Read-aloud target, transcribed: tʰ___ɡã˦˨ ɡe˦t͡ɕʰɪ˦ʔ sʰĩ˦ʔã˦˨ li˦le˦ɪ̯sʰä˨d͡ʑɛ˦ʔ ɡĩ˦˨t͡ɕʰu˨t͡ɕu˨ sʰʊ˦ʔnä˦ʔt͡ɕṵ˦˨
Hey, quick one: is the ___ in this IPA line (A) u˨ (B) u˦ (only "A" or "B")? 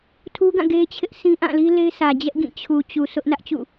B